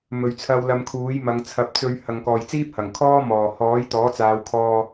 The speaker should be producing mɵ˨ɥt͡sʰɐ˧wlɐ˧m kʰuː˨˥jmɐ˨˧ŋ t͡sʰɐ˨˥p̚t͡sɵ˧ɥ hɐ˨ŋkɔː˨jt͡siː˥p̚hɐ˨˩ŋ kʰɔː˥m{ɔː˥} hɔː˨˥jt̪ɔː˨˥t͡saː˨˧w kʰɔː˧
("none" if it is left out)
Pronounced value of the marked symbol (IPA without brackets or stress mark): ɔː˨˩